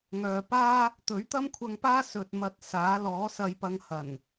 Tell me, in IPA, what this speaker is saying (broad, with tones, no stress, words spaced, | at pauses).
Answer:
ŋœː˨paː˥ | t̪ɵ˨˥ɥt̪ɐ˥mkʷʰɐ˧ŋpaː˥ sɵ˧t̚ mɐ˧t̚saː˨˥ lɔː˨˥sɐ˧jpɐ˧ŋ hɐ˨˩n